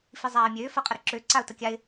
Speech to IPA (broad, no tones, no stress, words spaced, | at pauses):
fizˤaːɪ̯mʲøː fɐqʼəɾə ǁø ǀaʊ̯təkʲaɪ̯